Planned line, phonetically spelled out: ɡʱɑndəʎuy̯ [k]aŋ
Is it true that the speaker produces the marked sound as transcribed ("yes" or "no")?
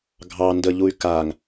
yes